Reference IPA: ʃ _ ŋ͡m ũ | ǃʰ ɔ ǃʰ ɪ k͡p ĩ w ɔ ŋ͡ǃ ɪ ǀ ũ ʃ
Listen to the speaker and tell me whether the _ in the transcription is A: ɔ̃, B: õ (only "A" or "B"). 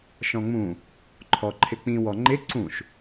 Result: A